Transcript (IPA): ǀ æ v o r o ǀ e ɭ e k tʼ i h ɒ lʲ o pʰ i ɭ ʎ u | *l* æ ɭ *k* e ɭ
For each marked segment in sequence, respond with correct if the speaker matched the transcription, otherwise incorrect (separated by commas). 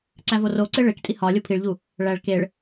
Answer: incorrect, correct